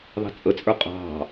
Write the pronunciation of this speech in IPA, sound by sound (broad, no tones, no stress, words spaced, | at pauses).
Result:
ðˤɛ̤t͡sʼət͡sʼə˞ qʼɑ̤